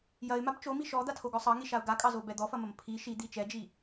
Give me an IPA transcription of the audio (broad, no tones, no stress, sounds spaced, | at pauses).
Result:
j ɐ ɪ̯ m a b t͡ʃ o m i ʃ ɔ d̪ a tʰ o ɡ ɔ sˤ ɑ ŋ i ʃ a ʊ̯ ɡ a kʼ ɑ z o b ɛ d̪ ɔ f ɐ m ɐ m pʰ i ʃ i d̪ i t͡ʃ ɛ d͡ʒ i